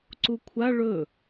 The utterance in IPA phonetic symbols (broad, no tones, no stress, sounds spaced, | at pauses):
ǀ u kʷʰ a ɭ ɵ